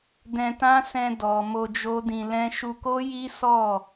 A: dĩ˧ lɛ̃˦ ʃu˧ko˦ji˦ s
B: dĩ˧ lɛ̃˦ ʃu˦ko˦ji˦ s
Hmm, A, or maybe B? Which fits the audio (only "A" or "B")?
A